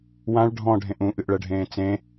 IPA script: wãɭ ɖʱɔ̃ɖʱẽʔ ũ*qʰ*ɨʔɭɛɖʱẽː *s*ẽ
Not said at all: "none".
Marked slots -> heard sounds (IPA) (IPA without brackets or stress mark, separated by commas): ʔ, t͡s